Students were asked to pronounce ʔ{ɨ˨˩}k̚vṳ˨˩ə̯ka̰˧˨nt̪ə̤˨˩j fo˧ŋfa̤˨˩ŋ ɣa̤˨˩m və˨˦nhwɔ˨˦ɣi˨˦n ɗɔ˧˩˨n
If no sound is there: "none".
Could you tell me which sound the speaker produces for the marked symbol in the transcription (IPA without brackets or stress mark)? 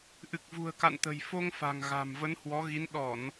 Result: ɨ˨˩